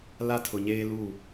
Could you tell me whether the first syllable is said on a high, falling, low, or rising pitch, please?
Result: high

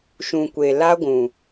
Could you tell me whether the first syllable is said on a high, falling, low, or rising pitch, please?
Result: low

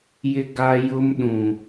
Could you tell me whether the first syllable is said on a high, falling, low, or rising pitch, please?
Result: high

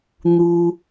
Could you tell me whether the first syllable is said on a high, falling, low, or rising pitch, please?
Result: high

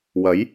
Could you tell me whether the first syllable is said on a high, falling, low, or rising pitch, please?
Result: rising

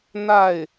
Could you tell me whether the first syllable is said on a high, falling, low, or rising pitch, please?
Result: falling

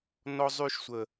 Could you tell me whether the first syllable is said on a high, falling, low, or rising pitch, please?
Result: high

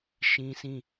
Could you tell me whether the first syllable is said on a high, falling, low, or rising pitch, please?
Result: high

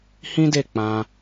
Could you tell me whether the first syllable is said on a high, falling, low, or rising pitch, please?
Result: high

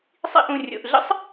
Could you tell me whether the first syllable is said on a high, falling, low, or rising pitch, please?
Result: high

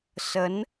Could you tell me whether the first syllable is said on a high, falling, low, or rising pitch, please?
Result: rising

